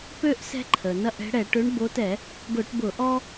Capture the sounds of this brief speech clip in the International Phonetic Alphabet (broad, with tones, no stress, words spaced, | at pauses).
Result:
pø˦ʔ sɛ̤˦ǃʰə˩ nɐ˦ʔɛ̤˨˦ɽɛ˧˩˧ʈ ø˨˦ɳbo˨˦tɛ˧˩˧ | ɡʊ˧˩˧ʈbʊ˧˩˧ʔɔ˦